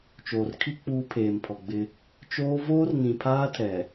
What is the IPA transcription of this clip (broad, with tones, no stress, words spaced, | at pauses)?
t͡ʃoː˨rkʰi˦ k͡puː˦pʰeː˨mpʰɔ˨ɡ͡bɪ˦ | t͡ʃoː˦ voː˦rnĩ˨pʰaː˦tʰɛ˨